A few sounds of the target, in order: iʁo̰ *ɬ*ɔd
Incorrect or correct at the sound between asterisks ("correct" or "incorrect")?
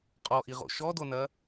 incorrect